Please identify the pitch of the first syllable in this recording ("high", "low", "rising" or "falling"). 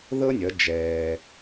high